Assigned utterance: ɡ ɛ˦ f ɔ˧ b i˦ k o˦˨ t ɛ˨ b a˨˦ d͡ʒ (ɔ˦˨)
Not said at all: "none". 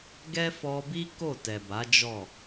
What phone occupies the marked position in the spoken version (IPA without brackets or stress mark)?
ɔ˦˨